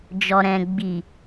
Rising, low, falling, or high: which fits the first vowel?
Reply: low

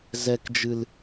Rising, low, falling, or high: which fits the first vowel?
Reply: low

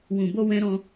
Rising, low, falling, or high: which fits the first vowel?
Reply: low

